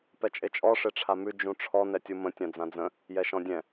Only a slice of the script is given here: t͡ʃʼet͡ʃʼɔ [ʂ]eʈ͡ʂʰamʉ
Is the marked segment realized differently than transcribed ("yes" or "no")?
no